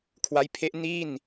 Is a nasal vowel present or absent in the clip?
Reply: absent